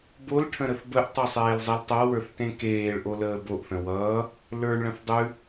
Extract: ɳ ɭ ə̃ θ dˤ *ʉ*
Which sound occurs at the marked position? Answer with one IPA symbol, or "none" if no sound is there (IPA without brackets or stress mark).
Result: ʉ